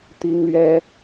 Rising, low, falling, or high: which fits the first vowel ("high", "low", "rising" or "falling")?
high